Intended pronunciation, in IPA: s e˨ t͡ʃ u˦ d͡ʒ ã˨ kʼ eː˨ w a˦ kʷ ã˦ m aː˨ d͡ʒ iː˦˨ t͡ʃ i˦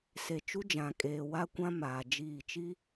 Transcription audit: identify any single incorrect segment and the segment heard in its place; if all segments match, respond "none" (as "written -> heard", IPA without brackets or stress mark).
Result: none